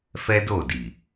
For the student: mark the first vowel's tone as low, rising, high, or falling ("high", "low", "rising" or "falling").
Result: high